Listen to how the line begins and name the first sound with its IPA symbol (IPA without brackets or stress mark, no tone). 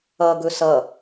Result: ʌ